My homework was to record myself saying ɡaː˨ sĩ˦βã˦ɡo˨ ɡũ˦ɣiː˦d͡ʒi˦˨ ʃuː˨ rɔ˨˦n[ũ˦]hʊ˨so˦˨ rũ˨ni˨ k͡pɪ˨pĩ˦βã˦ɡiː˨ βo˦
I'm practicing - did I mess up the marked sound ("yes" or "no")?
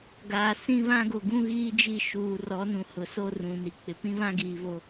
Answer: yes